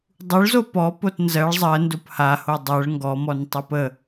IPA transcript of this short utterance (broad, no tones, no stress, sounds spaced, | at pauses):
dˤ u ɭ z o p ɔ p o t n z ɜ ɭ zˤ ɜ n d o p h a h o dˤ ɜ ɭ ŋ ɡ ɔ m ɔ n tˤ o p ə